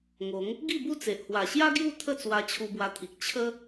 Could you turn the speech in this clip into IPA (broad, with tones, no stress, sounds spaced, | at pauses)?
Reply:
ŋ o˨˦ ŋ | ɡ i˥˧ b u˥˧ t͡s e˨ ʔ h w a˨˩ ɕ j a˦ ɡ j u˥˧ t̪ʰ ə˥˧ t͡s w a˧ t͡ɕʰ u˧ b w a˧ t̪ʰ i˨ k̚ t͡ɕʰ ə˦